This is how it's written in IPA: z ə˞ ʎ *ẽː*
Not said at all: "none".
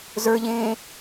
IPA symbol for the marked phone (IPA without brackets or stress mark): ẽː